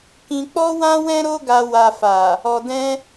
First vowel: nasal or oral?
nasal